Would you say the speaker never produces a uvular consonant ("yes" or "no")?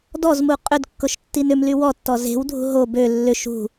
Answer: no